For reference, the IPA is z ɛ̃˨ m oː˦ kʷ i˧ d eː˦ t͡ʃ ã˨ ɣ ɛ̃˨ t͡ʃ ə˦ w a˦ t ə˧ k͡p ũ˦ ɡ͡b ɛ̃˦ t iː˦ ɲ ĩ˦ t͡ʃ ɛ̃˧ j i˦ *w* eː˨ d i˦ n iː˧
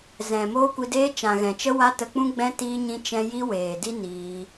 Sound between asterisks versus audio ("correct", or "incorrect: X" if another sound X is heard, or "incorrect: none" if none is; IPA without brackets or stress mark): correct